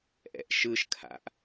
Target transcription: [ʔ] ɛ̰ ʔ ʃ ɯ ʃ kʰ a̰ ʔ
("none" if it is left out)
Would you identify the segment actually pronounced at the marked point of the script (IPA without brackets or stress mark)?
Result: ʔ